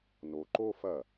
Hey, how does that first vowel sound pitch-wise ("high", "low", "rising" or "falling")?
low